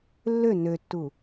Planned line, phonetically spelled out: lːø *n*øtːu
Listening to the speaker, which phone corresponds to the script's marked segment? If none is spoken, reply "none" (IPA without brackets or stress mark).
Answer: n